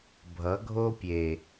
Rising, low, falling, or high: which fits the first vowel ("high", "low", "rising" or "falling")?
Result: rising